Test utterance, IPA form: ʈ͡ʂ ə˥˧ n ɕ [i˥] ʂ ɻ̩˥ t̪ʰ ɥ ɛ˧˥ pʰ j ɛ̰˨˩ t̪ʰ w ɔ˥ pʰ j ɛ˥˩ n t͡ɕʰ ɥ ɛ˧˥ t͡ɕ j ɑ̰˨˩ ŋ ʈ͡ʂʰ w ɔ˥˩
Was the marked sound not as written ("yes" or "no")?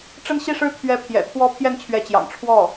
yes